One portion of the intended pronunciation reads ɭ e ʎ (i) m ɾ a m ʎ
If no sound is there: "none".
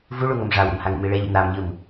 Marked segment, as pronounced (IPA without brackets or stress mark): ḭ